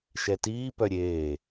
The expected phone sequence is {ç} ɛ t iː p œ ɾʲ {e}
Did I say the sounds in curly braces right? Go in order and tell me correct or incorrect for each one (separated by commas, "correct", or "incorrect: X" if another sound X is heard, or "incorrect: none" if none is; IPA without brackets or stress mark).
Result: incorrect: ʃ, incorrect: eː